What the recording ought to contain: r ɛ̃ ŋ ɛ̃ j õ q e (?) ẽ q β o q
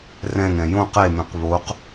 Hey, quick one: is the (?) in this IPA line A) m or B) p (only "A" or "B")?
A